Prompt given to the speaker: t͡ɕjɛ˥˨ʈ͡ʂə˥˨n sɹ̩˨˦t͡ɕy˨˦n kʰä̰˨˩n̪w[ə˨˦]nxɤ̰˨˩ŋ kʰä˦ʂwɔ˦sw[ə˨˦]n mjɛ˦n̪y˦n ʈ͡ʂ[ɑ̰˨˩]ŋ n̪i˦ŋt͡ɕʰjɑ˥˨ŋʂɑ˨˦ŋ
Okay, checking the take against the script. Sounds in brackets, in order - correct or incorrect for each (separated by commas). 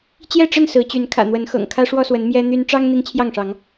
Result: correct, correct, incorrect